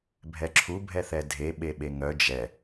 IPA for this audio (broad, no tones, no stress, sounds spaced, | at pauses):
bʱ ɛ ǁʰ u bʱ ɛ θ ɛ dʱ e ɓ e ɓ e ŋ œ d͡ʒ ɛ